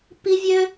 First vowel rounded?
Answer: no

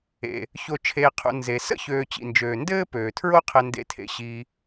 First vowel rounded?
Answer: no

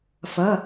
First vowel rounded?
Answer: no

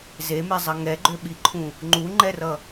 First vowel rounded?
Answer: no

